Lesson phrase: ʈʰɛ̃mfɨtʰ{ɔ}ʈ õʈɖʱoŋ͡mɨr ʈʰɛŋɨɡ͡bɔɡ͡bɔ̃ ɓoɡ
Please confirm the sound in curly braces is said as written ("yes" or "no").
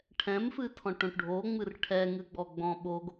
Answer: no